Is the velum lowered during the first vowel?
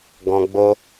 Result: yes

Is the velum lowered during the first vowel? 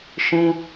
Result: yes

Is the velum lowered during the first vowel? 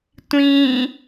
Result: yes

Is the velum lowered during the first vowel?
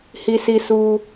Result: no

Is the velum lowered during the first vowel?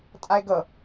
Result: no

